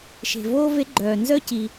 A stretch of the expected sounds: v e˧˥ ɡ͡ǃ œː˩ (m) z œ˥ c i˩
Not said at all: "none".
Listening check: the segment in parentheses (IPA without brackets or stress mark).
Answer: n